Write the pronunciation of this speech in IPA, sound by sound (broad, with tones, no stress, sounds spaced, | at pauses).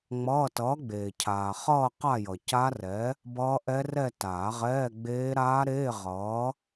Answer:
ŋ͡m ʌː˧˥˧ t ʌː˨˥ ɡ͡b eː˨ cʰ aː˨ χ ʌː˥˧ q a˥˧ j ʌ˨ c a˦˥ r ɛ˨˥ | b ʌː˦˥ ʔ ɛ˦˥ r ɛ˥˧ t aː˨˩˦ ʁ ɛː˧˥˧ ɡ͡b eː˦˥ ɾ aː˦˥ ɾ eː˧˥˧ ʁ ʌː˨˥